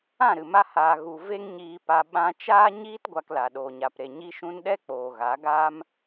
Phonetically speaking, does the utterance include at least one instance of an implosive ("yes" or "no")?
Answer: yes